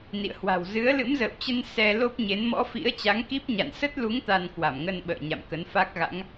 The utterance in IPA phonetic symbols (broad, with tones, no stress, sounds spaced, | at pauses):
n ḭ˧˨ ə̯ h w a̤˨˩ w z ɨ˨˦ ə̯ l ɨ̰˧˥ m z ə̰ː˧˨ w t͡ɕ ə˧ n s ɛ˧ l o˦˥ p̚ ɲ e˨˦ n m ɔ̰˧˥ f ḭ˧˥ ə̯ t͡ɕ a˨˦ ŋ k i˦˥ p̚ ɲ a̰˧˨ n s ə˦˥ t̚ l u˨˦ ŋ t̪ a˧ n k w a˧˩ m ŋ ə˧ n ɓ ə̰ː˧˨ ɲ a̰˧˨ m k ə˨˦ n f a˦˥ k̚ ɣ a̰˧˥ ŋ